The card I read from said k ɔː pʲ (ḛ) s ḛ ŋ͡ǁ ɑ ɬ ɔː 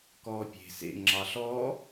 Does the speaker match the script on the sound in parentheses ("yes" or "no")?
no